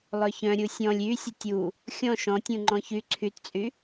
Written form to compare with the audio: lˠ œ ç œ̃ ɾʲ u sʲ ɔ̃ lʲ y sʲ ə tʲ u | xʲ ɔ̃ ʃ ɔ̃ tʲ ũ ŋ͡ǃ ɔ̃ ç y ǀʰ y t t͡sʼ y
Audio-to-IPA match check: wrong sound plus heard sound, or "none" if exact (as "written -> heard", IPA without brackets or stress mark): none